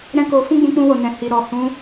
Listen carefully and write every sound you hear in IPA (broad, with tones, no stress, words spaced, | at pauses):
ɾɛ̃˦ko˧ fũ˦ɡ͡bũ˧k͡pũ˧wo˨ nɛ̃˨hi˨ ɾɔ˨hũ˧